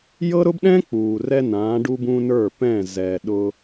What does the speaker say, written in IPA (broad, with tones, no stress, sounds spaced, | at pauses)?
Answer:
j ɤ˦ ɾ ʊ˦ b ɗ ɛ̃˦ k͡p uː˨ r ɛ˦ n ãː˨˦ ɖ u˦ b ũ˦ n ə˞˦˨ p ɛ̃˦˨ z ɛ˨ ɗ ʊ˦